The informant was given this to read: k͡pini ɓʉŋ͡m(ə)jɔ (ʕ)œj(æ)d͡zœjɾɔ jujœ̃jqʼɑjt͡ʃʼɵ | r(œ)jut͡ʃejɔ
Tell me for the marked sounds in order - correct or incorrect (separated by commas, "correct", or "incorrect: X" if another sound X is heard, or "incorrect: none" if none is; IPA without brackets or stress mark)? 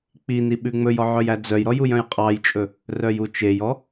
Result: incorrect: ɵ, correct, correct, correct